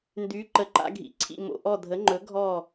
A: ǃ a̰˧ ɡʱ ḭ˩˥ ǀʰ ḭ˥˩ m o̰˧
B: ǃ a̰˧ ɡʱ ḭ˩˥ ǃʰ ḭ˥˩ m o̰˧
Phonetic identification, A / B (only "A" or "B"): A